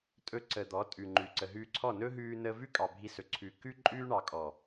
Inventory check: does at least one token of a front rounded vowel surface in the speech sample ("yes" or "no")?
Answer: no